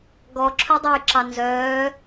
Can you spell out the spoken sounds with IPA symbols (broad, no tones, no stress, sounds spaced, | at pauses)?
ɡ ɔ ǁʰ ɵ dˤ o j ǁ ɑ n z œː